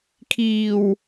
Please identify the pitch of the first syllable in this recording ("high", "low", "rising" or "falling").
low